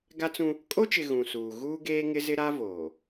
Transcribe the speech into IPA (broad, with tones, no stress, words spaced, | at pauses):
ɡa˦t͡sũ˦ | kʼo˦t͡ʃɪ˨ ɣũ˨suː˨ ɣuː˦ɡeː˦ŋɪ˦zɪ˦ ɾa˦voː˨